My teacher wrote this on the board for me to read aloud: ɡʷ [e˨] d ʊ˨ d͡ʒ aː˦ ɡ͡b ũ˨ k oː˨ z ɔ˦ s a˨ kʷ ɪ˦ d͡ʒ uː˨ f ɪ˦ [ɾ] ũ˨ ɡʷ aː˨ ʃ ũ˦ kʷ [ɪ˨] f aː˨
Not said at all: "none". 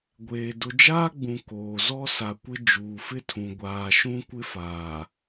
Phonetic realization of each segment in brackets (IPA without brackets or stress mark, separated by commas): eː˨, tʰ, ɪ˦